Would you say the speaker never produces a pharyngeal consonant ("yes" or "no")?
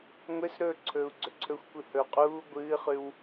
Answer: yes